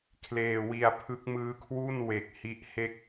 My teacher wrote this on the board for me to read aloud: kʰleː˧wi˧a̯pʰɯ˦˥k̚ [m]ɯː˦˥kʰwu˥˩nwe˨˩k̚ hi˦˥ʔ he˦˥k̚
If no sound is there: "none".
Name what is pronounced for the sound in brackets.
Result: m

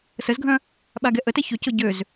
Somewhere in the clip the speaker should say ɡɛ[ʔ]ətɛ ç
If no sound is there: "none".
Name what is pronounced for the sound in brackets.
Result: ʔ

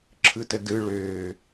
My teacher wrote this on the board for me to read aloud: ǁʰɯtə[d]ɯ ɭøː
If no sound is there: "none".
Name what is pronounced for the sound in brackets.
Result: d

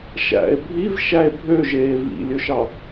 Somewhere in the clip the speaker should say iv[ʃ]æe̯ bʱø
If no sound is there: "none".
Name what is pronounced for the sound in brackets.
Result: ʃ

